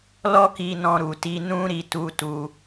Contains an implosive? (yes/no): no